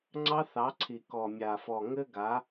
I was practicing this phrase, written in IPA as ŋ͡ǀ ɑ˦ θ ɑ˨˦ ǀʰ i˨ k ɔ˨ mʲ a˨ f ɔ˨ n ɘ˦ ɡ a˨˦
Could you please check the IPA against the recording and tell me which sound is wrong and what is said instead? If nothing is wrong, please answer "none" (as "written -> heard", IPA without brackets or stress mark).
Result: n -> ŋ